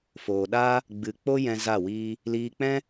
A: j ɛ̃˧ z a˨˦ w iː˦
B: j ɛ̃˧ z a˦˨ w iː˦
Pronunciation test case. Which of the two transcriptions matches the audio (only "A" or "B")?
B